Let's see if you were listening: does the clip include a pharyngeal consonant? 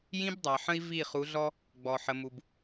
yes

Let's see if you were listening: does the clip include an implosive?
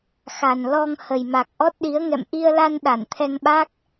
yes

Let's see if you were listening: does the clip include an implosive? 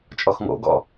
no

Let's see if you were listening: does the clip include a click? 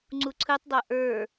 yes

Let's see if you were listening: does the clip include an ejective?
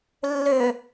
no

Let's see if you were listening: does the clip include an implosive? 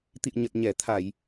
no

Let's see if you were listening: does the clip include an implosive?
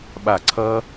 yes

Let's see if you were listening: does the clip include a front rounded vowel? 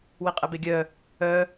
yes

